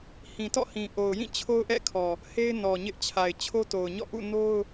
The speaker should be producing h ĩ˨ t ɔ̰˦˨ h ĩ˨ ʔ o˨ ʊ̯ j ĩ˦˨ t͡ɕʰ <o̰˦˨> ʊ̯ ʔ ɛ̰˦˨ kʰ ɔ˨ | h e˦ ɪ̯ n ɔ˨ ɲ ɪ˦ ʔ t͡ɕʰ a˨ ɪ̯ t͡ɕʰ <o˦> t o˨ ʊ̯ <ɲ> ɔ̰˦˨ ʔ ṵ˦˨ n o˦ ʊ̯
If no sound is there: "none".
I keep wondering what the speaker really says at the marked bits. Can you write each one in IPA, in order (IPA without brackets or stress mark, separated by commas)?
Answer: o˦, o˦, ɲ